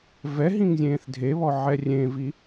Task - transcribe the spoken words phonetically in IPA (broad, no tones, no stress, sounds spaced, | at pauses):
v ɛ ɦ ĩ ŋ zʲ ẽː θ dʱ e β ɔ ʕ ɛ rʲ ẽ v i